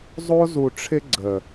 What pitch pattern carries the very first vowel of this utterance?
high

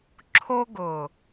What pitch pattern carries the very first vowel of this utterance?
high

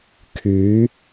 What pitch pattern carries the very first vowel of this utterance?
rising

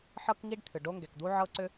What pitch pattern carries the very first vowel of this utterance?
high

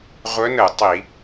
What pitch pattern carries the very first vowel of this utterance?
rising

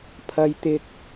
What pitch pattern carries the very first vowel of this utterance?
low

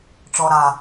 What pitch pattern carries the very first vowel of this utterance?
low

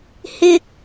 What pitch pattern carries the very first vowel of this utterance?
high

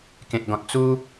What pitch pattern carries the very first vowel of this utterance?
low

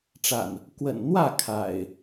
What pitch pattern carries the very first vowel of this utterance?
low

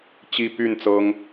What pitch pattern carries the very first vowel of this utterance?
high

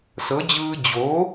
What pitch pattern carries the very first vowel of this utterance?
rising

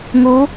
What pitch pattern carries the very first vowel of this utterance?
rising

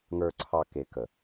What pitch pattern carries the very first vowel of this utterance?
low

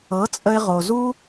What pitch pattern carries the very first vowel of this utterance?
rising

